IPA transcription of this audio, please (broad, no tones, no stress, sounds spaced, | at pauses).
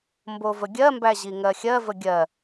m b o v ə ɡʲ ɜ m b æ ʑ i ŋ ɜ xʲ ɜ v ə ɡʲ ɜ